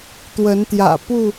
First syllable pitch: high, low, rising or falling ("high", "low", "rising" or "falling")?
rising